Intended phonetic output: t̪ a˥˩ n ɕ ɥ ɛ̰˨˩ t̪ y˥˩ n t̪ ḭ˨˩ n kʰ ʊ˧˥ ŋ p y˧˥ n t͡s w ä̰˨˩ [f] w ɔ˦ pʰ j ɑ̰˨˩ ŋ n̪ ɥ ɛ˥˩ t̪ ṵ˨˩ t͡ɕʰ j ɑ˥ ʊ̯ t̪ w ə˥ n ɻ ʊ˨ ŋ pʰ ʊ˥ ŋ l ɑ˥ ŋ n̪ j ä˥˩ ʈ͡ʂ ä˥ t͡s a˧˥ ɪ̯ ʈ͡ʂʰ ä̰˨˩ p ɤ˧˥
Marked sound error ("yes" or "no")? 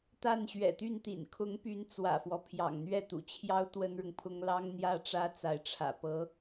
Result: no